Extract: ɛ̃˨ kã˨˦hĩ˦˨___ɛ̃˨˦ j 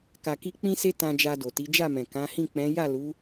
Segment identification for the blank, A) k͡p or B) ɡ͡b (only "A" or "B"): A